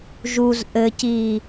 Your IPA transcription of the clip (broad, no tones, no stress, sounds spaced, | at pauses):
ʒ u z ʔ ɘ c iː